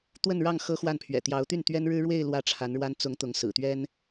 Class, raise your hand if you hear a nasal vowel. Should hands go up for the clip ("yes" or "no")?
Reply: no